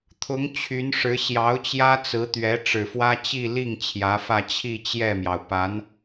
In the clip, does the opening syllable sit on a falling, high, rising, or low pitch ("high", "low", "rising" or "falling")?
rising